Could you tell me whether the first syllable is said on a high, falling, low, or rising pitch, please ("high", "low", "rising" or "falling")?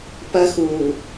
high